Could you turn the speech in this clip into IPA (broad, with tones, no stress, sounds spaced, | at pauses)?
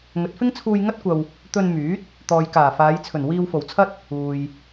ŋ ɵ˨ t̚ f ɪ˥ ŋ t͡sʰ uː˧ j ŋ ɐ˥ t̚ kʷ ɐ˧ w | t̪ ɵ˧ n m yː˨˥ t̚ | t̪ ɔː˨ j k aː˨˩ f aː˨˧ j t͡sʰ ɵ˨˩ n w iː˧ w f o˨˩ w t͡sʰ ɐ˥ t̚ | uː˨ j